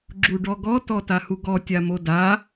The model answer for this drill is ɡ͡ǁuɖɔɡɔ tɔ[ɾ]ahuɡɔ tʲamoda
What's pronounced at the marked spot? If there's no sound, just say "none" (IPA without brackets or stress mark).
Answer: t